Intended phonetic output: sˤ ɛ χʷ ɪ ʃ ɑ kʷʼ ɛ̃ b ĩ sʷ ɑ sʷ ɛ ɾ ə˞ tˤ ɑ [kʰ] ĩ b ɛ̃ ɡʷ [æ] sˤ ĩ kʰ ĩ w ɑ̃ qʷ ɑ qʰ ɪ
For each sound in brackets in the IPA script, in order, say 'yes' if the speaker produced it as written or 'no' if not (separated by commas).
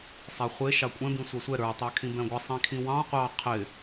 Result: yes, no